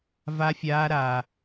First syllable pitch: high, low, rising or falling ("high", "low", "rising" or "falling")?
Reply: high